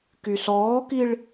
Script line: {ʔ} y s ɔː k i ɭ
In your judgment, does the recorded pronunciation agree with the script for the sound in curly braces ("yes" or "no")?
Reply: no